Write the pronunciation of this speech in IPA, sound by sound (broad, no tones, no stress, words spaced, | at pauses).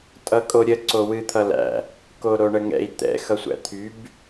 tʼʌkʼoɾʲə ǀowɨt̪ʰʌlæ̰ | koɾoɳəŋɛ̰i̯ t̪ɛ̰ xʌsʷæ̰t̪ʰyb